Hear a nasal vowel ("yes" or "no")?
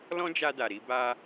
yes